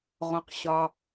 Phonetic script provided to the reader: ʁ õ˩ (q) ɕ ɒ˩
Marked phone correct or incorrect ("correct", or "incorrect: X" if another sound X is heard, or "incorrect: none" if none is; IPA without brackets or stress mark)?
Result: correct